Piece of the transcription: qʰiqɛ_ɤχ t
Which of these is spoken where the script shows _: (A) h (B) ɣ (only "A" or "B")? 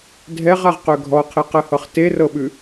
A